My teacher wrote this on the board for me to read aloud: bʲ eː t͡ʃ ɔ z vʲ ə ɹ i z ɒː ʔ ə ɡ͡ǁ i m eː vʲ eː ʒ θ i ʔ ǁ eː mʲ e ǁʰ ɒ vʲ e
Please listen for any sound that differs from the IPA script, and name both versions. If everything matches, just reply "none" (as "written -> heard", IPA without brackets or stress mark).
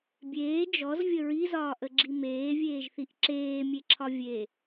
t͡ʃ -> d͡ʒ